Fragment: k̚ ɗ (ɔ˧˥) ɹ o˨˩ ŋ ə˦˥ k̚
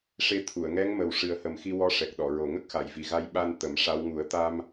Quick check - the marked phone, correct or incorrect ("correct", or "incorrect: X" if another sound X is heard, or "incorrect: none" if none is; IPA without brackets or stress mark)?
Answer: incorrect: ɔ˨˩˨